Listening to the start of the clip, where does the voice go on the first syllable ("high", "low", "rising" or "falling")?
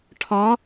rising